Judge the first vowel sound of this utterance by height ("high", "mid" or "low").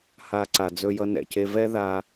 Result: low